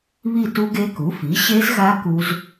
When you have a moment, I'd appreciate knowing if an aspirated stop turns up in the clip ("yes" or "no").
no